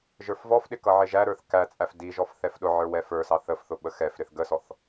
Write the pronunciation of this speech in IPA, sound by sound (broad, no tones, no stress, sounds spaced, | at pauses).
ʒ ə˞ f v ɔ f ɗ ɪ k ʌ ʕ ɪ ʒ æ ɾ ə˞ θ k æ t͡sʼ æ f d i ʒ ɔ f θ ɛ f ɗ ʊ ʕ ə˞ w ɛ f ə˞ s ɑ θ ə f θ ʊ ɓ ə x ɛ f ɾ ɪ θ ɡ ə s ɔ θ